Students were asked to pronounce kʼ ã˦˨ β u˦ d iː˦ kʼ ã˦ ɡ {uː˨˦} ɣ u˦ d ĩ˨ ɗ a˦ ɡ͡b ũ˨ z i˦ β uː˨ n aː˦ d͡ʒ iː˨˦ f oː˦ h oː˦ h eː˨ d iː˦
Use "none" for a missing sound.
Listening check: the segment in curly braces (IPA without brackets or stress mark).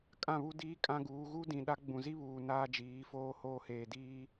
uː˨˦